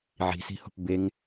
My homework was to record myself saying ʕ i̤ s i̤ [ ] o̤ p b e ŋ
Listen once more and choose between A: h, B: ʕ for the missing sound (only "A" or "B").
A